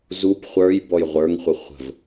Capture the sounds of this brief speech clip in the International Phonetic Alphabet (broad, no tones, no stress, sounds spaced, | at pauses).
z u p χʷ ə˞ j b ɔ j ʁʷ ə˞ ŋ χʷ ə χʷ ə̤ v